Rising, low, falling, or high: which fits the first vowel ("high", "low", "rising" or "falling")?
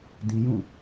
high